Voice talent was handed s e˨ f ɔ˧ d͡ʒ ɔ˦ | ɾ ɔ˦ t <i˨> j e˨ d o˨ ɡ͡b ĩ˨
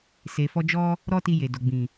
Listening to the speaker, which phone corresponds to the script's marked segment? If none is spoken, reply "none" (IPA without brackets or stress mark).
i˧